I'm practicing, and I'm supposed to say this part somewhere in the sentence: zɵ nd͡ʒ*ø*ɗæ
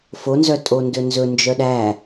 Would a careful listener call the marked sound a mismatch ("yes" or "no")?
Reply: yes